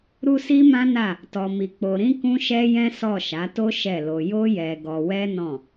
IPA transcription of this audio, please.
ɾu˦si˦mã˦na˦˨ | tɔ˧mi˧k͡po˧ɾĩ˦ kũ˦ʃɛ˦jɛ̃˦ sɔ˦˨ʃa˨˦to˦ ʃɛ˦˨lo˧ jo˦jɛ˧ɡɔ˧wɛ˦ nɔ̃˦˨

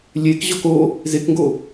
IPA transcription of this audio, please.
lʲekʑɔk o | zekŋɡo

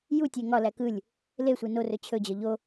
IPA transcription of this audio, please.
jutʲe ŋɒlæ kɯlʲ | le sʷenorɵ t͡ɕʰɵd͡ʑɒ ʎo

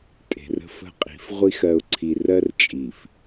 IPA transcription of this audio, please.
tʼe̤˨rə̤˦ fə̤˦qʼi̤˨˦f ʁʷi˦x ɜ˨ʊ̯ǀʰi˨ rɜ˦rt͡ʃʼi˨f

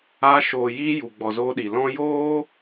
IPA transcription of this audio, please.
a˧ ʃoː˨jiː˧ ju˨ɡ͡bɔ˨zoː˧ɗi˨ lɔ̃˧joː˦

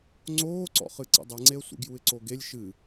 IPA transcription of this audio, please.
ŋ͡ǀoːǀɔ̰χɨ ǀḭdˤeŋ͡ǀeə̯sʷḭ ɡjuɪ̯ǀoɡelʲ ʃɨ

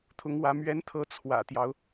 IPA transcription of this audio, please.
t̪ʰʊ˧˥ŋwä˧˥ mɥɛ˧˥nt̪ʰɤ˧˥ t͡sʰwä̰˨˩t̪jɑ˦ʊ̯

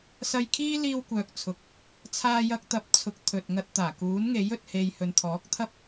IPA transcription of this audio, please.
sɐ˧jkʰiː˥ liː˧wkʷœː˨k̚t͡sʰʊ˨k̚ | t͡sʰaː˧jɐ˧k̚t̪ɐ˨˥p̚t͡sʰʊ˨˥k̚ t̪ʰɵ˨t̚ŋɐ˧t̚ t̪aː˨˩kuː˨˥nŋe˨˥jɵ˨t̚ he˨jhɵ˨nt̪ʰɔː˨˥k̚ t̪ʰɐ˥p̚

